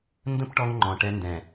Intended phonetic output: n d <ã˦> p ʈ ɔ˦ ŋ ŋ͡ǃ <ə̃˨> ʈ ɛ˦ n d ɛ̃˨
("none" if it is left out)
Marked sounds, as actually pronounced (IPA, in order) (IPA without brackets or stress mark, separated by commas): ə̃˦, ɔ̃˨